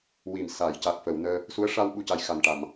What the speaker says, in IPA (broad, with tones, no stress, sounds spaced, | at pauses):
w i˨˩ m s a˨˩˨ j c a˨˩ k̚ f ə˨˩˨ w n əː˧ | s u˧˥ ə̯ ʂ a˧ w ɓ u˨˩ c a˨˩ j x a˨˩ n ʈ a˨˩˨ m